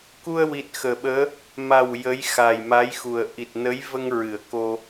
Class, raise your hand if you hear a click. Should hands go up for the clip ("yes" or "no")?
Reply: no